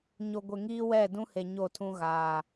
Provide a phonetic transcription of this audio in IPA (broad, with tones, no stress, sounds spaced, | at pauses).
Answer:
ɲ o˨ ɡʷ e˨ ŋ iː˦ w ɛ˦˨ d ũ˦ h e˨ ɲ o˦˨ tʰ ũ˦ ɣ aː˨